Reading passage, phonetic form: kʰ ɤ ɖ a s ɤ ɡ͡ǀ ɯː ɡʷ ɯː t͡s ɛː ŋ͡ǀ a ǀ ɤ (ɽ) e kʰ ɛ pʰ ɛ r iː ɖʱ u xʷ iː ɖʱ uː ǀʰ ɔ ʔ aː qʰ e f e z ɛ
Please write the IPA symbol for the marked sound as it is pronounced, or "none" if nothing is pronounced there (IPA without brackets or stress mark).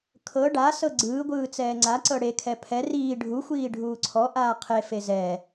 ɽ